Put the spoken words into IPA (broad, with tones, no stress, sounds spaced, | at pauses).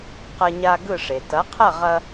q ɐ˧ ɲ a˧ ɡ ɯ˥˩ ʂ e˩ t ɐ˩˥ qʰ ɐ˥˩ ʁ ɐ˧